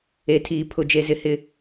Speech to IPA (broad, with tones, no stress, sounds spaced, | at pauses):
e˨ tʰ iː˨ pʰ ʊ˨ d͡ʒ e˨ z ɪ˨ h ɪ˨